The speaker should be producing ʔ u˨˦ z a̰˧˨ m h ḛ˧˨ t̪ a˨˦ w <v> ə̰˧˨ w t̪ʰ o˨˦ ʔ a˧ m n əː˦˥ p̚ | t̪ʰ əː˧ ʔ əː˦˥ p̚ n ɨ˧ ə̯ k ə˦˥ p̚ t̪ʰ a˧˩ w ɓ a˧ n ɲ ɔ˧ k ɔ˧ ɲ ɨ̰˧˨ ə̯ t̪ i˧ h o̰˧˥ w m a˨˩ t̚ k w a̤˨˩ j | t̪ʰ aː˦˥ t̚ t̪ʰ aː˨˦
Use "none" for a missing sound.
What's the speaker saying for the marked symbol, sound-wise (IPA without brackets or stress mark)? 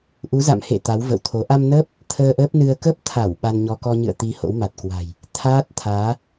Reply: v